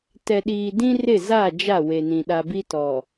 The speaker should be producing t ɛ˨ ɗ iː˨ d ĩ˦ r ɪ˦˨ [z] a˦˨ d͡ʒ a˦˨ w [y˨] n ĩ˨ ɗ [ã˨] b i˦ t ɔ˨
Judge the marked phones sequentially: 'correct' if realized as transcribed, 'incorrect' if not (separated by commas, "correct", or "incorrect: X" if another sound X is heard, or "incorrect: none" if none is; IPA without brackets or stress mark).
correct, incorrect: e˨, incorrect: a˨